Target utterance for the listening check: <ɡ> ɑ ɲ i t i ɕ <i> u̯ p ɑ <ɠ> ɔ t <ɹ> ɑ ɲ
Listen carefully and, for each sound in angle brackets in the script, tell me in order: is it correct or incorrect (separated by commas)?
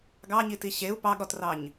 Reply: correct, incorrect, correct, incorrect